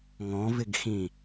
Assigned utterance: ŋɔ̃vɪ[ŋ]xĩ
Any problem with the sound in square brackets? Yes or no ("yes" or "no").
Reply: yes